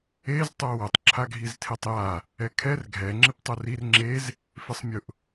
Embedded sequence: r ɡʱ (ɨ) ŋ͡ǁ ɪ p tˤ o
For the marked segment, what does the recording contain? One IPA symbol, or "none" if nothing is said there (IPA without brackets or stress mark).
ɛ